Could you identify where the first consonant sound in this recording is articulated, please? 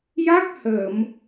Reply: palatal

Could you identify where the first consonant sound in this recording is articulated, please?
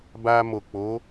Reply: labial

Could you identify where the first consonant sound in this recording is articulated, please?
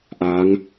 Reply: glottal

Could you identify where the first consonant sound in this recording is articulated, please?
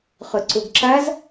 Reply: uvular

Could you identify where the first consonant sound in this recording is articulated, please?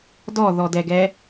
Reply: alveolar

